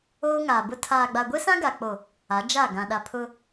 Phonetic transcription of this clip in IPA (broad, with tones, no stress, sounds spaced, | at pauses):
oː˦ ŋ aː˨ b ʊ˦ tʰ aː˨ ɡ͡b a˨ ɡʷ e˦ s ã˦ ɡ a˨ k͡p o˨ | a˨˦ d͡ʒ a˦˨ ɡ ã˨ ɗ a˨ pʰ ʊ˦